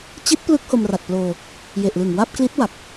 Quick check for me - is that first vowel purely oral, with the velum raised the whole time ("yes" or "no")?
yes